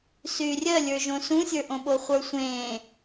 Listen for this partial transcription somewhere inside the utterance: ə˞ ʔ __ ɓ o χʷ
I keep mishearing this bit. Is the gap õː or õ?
õ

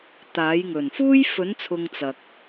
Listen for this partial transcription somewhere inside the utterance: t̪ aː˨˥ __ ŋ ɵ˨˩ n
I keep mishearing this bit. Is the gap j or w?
j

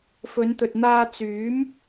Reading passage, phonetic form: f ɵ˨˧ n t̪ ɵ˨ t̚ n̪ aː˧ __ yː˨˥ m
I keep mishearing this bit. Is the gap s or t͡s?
t͡s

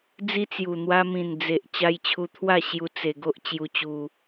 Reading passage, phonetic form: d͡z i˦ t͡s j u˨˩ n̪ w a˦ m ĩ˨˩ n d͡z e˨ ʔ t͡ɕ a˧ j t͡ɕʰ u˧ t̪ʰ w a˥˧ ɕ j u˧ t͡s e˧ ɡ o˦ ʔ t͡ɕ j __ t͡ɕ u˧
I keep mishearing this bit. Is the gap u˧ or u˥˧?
u˧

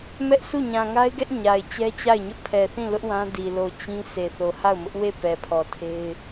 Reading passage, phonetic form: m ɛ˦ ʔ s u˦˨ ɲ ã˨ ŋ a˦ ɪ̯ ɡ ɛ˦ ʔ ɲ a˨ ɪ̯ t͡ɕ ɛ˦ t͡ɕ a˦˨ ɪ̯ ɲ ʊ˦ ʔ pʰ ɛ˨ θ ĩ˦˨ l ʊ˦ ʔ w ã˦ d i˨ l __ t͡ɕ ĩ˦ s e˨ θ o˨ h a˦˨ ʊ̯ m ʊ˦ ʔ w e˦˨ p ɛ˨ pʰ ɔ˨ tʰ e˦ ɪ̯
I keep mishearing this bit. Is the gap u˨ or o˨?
o˨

